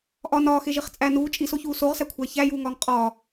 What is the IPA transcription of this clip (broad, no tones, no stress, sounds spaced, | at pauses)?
ʔ ɒ n ɒː x e ʒ i χ t͡sʼ æ n uː t͡ʃʼ i s o ç uː s o ʁ s æ kʷʰ æ ç æ j uː ŋ ɒː ŋ qʼ ɒː